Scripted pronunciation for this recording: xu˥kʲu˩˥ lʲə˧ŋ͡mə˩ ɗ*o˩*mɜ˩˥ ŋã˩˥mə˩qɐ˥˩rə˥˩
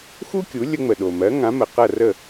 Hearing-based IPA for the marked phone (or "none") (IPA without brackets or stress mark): o˩